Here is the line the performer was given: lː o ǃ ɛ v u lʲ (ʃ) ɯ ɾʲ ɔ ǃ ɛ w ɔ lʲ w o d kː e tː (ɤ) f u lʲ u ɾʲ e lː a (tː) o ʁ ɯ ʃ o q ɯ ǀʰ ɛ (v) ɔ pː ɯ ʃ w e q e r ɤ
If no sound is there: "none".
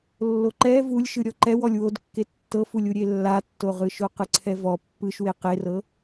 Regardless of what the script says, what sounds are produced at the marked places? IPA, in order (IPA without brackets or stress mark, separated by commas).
ʃ, ɤ, tː, v